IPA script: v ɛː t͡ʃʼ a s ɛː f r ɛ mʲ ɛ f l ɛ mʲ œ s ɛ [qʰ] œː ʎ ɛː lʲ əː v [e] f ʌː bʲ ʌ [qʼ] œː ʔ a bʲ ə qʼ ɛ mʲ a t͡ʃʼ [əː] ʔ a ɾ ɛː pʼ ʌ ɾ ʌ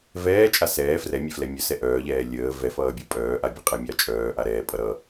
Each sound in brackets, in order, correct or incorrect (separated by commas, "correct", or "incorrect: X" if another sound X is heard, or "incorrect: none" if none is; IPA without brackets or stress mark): incorrect: ʔ, incorrect: ɛ, incorrect: pʼ, incorrect: œː